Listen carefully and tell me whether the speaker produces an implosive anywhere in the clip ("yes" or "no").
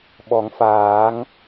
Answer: yes